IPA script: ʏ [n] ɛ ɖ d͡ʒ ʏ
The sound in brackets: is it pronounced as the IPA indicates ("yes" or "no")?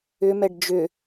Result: no